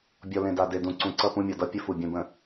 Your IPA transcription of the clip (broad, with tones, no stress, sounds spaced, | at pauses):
bʲ ɔ˨ l ẽ˨ d a˨ d e˨ d ũ˨ ǀ ũ˨ ǀ ʌ˦˨ p ũ˦ mʲ ɔ˨ d ʌ˦˨ pʲ ə˦ f u˨ bʲ ũ˨ b ə̃˨